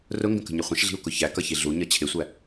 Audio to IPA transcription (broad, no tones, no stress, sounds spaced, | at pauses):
r ʊ ŋ ɡ ə̃ k ə̤ ɲ ə χʷ ə̃ ʃ ɮ i̤ u̯ k ʊ ç æ k ʌ ç i ɮ u ɲ ʌ t͡ɕʰ ɪ sʷ æ